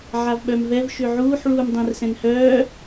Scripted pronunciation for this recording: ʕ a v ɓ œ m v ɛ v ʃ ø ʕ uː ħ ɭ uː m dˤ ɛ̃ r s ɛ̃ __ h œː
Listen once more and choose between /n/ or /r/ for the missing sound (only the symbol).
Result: n